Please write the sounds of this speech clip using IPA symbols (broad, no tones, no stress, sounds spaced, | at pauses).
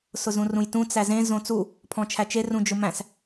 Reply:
s ʊ z ũ r ũ j t ũ t͡s æ z ẽ z õ t͡s u | pʰ ɔ̃ t͡ʃʰ æ t͡ʃ e r ũ d͡ʒ ʊ m æ̃ s